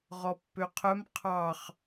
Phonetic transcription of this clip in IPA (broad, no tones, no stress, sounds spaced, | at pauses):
ʁ ɔ pː ø qʰ œ m qʰ ɑ χ